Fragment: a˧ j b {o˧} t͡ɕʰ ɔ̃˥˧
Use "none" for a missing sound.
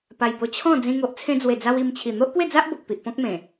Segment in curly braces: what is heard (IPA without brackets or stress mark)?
o˧